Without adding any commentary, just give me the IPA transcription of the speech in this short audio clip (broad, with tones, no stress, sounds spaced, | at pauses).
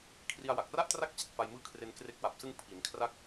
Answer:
kʰ r i˧ a̯ w a˨˩ k̚ r a˥˩ ʔ t r a˥˩ k̚ t͡ɕ i˨˩ t̚ f a˧ j m ɯː˦˥ kʰ r e˧ n k r e˦˥ k̚ w a˨˩ p̚ s ɯ˧ ŋ pʰ i˩˦ n kʰ r a˥˩ k̚